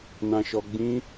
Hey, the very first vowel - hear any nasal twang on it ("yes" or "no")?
yes